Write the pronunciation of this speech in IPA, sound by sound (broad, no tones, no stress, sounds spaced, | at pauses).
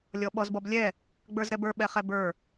lʲ ɔ ɓ ɔ z b ɔ b lʲ ɛ | ɡ͡b ə˞ z ɾ ɛ b ə˞ ɓ ɛ χ ɛ b ə˞